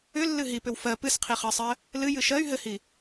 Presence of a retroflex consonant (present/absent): absent